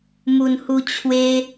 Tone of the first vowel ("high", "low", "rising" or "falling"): low